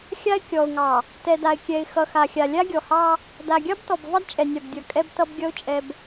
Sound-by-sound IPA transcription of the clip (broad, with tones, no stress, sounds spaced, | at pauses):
xʲ a˦ ɪ̯ kʲ ɔ˨ ʊ̯ ŋ ɑ˨ | t ɛ˨ d a˨ ɪ̯ kʲ ɛ˨ ɪ̯ x ʌ˨ x a˨ xʲ a˨ lʲ a˦ ɡʲ ɔ˨ h ɑ˦ | d a˨ ɡʲ ɑ˦ b t ɔ˨ b v ɑ˦ d t͡ʃʼ ɛ˨ nʲ a˨ b dʲ ʌ˨ kʼ ɛ˦ b t ʌ˦ b ɡʲ ʌ˦ ʊ̯ t͡ʃʼ ɛ˦ b